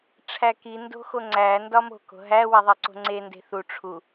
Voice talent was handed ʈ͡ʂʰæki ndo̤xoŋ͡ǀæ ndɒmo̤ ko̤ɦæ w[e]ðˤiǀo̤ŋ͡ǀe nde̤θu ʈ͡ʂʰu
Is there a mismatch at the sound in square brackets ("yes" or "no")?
no